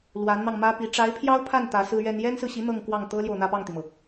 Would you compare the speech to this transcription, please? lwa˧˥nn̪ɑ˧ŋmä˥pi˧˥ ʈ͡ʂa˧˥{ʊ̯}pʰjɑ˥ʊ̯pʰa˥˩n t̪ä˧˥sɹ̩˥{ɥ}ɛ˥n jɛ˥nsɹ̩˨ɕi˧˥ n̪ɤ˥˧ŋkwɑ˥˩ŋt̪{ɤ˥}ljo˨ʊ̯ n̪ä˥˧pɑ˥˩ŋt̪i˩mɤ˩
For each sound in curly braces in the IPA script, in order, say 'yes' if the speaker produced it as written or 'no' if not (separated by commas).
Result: no, yes, yes